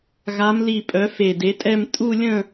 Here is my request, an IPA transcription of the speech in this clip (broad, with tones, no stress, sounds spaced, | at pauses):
ɣ a˨˦ m l i˧˩ pʼ œ˨˦ f e˧˩ d e˨˦ tʼ ɛ˥˧ m tʼ u˥˧ lʲ ə̃˥˧